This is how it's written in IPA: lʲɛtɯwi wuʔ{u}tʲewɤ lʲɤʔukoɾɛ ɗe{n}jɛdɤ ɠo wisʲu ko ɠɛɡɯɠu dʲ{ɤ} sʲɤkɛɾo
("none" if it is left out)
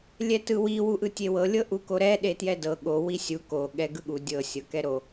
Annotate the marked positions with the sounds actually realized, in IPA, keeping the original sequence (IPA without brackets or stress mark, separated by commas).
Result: ɯ, t, ɤ